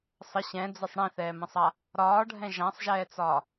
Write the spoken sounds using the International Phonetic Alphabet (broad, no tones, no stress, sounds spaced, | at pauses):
sˤ ə ɕ ɛ̃ d͡z ɛ sˤ ɽ ĩ θ ɛː m ə̃ sˤ a | ɾ ɒː ɖʱ ɛ̃ ʒ ã sˤ ʒ ɛː t͡s ɒː